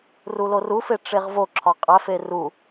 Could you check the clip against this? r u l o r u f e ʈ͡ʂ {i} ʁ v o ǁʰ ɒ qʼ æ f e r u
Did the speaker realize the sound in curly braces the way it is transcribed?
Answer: no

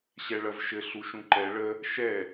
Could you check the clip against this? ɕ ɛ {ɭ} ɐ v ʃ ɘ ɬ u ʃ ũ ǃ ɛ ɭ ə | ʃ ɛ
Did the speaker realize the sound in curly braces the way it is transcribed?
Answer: yes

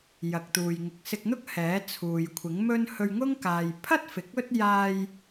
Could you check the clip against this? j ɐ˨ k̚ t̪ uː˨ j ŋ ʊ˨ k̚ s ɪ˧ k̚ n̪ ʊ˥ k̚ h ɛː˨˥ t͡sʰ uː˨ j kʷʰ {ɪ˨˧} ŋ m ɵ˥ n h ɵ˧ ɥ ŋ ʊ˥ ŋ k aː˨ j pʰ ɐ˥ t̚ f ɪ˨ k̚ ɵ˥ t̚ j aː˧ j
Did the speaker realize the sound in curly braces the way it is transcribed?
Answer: no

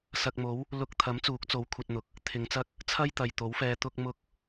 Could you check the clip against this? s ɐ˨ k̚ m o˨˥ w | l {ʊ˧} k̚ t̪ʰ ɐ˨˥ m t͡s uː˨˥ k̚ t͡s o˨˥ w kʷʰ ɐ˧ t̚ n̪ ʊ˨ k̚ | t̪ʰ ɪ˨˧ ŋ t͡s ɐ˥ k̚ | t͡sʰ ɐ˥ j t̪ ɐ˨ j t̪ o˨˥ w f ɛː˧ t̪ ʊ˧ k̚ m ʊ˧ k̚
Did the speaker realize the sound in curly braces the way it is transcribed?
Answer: yes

